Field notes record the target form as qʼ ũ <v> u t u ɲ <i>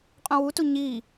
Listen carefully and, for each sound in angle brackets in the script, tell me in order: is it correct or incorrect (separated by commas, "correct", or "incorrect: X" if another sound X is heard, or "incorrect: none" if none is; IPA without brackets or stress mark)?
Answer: incorrect: w, correct